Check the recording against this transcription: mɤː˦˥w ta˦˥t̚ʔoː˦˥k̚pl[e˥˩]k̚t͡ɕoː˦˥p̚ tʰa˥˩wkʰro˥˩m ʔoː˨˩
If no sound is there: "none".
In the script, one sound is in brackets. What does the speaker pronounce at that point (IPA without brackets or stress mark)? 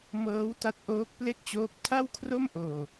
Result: e˥˩